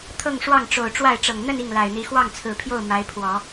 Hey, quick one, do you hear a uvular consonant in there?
no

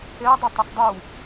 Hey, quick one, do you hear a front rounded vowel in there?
no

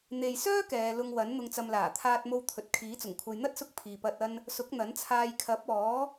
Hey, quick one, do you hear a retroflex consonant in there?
no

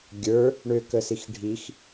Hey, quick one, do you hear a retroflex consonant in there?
yes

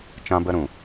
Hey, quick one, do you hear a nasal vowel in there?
yes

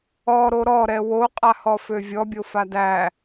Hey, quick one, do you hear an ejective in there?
yes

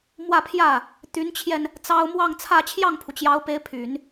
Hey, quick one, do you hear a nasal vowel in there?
no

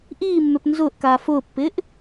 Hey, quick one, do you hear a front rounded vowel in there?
yes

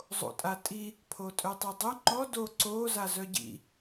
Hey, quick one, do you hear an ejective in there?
yes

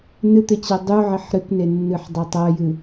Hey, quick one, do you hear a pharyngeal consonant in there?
yes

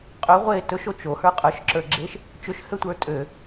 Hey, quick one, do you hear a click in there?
yes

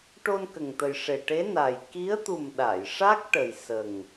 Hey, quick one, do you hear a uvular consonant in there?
no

